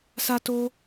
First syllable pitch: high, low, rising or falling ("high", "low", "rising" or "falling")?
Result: high